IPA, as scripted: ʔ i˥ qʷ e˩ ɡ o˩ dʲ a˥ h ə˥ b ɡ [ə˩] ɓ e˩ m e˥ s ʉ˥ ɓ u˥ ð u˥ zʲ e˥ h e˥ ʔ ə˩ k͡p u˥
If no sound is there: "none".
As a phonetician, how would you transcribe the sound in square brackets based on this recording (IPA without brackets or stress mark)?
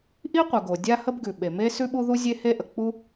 ʉ˩